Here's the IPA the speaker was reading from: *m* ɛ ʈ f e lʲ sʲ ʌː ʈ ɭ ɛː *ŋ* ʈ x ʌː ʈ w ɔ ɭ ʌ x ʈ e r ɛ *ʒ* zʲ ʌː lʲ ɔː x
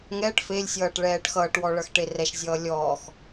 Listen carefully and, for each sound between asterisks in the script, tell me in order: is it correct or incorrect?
incorrect: ŋ, incorrect: none, incorrect: ʃ

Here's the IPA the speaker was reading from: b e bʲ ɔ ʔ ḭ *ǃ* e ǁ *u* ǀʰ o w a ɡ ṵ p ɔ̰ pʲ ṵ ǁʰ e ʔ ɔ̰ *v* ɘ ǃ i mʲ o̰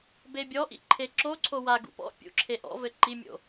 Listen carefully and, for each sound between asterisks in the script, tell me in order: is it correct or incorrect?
incorrect: ǃʰ, incorrect: o, correct

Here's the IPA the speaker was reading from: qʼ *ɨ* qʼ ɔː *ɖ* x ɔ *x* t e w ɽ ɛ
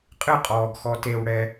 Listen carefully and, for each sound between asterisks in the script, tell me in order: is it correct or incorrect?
correct, incorrect: ɡ, incorrect: none

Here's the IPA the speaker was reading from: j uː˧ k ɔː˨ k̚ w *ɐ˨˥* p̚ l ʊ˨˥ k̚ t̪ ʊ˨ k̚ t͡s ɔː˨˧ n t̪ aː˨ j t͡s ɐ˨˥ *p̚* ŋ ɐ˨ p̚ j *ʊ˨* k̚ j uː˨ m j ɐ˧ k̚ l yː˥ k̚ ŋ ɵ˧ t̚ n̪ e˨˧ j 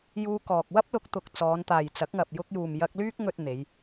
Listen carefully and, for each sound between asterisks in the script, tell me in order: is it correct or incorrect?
incorrect: ɐ˥, incorrect: k̚, incorrect: ʊ˧

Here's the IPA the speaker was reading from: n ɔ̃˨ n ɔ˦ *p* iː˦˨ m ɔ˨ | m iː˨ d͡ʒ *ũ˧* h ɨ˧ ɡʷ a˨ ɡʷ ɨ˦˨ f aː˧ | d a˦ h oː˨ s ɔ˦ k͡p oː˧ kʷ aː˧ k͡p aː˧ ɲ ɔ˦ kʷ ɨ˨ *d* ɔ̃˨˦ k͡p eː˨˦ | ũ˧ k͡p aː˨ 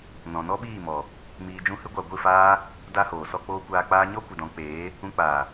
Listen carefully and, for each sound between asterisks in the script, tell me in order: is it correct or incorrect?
incorrect: ɓ, correct, correct

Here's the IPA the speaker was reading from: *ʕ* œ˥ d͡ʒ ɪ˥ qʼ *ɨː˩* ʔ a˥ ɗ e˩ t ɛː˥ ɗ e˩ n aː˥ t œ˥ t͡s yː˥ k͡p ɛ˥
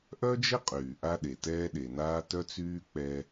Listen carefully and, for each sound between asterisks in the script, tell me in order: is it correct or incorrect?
incorrect: ʔ, incorrect: yː˩

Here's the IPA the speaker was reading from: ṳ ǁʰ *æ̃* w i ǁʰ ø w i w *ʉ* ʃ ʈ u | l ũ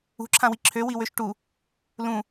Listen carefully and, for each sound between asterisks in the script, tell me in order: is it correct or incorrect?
incorrect: ã, incorrect: ø

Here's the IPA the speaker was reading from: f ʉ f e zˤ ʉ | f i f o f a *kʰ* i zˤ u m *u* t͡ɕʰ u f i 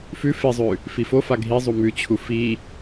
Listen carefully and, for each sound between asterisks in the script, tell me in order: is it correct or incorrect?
incorrect: ɡʱ, incorrect: ʉ

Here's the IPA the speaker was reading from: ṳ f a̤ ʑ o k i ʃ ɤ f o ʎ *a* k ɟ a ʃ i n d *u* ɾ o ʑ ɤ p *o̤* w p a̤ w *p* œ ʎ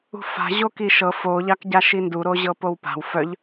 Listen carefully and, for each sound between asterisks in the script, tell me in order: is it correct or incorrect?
incorrect: ɑ, correct, incorrect: o, incorrect: f

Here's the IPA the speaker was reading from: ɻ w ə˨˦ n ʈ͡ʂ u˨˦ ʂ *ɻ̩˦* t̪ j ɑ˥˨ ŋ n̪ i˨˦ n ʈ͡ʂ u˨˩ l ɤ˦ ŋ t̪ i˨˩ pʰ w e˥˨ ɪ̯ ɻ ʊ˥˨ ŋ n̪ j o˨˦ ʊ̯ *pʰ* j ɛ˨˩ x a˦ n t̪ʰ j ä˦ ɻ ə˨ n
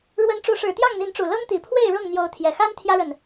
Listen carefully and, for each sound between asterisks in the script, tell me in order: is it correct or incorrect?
incorrect: ɻ̩˨˩, incorrect: t̪ʰ

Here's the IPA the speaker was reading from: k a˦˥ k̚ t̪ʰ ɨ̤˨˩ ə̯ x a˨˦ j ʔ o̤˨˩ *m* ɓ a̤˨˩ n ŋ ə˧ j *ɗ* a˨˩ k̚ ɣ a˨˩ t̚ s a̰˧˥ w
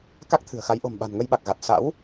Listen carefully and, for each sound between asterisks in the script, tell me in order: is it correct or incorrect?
correct, incorrect: ɓ

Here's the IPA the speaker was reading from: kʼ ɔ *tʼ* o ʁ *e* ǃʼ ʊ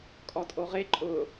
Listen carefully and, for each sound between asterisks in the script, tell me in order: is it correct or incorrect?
correct, correct

